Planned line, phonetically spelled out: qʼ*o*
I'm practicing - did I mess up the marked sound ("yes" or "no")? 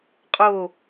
no